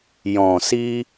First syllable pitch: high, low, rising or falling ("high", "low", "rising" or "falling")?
low